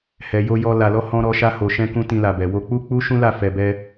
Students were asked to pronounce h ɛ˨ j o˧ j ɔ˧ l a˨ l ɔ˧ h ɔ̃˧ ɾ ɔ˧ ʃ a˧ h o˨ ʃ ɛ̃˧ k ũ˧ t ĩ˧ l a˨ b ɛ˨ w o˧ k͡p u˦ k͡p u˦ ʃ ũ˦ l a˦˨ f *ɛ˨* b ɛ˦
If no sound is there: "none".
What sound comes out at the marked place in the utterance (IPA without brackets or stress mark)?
ɛ˧